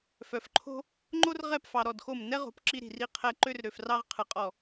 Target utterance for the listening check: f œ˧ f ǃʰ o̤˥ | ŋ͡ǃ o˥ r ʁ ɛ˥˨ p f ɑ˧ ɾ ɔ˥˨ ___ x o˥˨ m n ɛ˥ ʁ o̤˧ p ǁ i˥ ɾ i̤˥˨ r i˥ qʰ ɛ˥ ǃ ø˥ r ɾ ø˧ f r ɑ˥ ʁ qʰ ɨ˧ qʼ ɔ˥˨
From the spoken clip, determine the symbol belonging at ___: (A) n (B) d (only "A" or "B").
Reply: B